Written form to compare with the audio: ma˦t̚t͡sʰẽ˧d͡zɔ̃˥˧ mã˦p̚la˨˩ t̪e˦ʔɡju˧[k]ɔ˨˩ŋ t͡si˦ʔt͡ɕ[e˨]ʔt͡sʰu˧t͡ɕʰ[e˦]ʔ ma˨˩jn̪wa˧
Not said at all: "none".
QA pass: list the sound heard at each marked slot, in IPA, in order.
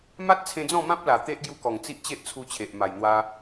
k, e˦, e˨

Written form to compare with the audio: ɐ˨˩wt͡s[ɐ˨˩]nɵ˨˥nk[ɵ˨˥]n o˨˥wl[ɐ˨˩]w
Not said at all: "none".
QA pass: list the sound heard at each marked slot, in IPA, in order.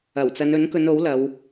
ɐ˨˧, ɵ˨˧, ɐ˨˧

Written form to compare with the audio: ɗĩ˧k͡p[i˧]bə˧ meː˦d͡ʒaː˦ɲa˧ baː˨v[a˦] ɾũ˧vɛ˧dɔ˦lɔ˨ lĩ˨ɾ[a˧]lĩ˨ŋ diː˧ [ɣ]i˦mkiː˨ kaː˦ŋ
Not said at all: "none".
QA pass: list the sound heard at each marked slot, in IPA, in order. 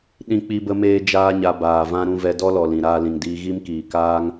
i˧, ã˦, aː˧, ɣ

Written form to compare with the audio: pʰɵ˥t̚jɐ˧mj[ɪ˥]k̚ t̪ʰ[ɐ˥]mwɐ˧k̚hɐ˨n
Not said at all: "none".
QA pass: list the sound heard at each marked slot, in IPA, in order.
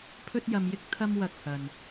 ɪ˥, ɐ˥

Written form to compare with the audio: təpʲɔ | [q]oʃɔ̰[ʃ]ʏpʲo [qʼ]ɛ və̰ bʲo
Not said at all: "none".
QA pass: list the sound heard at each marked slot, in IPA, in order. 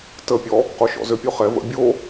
q, z, χ

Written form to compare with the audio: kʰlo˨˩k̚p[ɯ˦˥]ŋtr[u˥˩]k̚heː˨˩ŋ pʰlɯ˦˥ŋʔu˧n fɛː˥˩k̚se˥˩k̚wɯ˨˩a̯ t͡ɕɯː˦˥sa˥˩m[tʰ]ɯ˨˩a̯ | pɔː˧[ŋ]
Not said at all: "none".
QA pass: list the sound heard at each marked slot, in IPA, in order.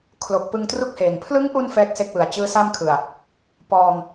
ɯ˧, u˥˩, kʰ, ŋ

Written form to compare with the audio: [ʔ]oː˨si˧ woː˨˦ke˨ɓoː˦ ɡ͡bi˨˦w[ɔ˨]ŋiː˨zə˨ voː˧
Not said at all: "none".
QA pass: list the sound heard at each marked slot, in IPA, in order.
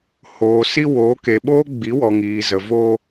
h, ɔ˨

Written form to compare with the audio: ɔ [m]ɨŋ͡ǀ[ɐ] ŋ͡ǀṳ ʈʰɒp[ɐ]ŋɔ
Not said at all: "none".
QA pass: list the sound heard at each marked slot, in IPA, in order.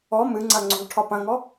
m, ɐ, ɐ̃

